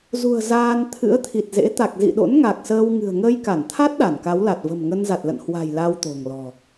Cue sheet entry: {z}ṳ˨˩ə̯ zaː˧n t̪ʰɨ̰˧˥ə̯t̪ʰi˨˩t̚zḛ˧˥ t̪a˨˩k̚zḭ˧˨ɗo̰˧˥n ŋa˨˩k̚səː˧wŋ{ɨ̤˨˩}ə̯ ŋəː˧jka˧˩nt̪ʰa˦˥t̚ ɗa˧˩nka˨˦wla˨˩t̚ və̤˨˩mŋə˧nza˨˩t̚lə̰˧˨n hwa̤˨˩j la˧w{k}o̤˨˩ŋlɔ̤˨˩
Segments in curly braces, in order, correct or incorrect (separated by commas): correct, correct, incorrect